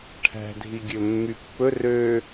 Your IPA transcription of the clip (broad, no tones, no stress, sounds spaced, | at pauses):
ʈʰ æ̤ dʱ i ɡʲ ɵ mː y pː ɵ r ø